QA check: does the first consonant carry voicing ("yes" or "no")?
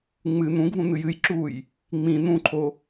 yes